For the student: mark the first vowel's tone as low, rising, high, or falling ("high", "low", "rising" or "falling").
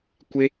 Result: high